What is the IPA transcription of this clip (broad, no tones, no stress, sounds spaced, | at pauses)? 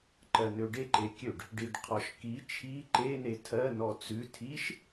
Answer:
ǃ ɜ n ø ɖ e ǃ e kʲ ø ɖ | ɖ i ɖ qʰ ɔ ʃ k i t͡ʃʰ i ǃ e n e tʰ ɜ n ɔ t͡s ʉ tʰ i ʃ